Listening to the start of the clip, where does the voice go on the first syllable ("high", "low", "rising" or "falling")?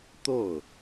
falling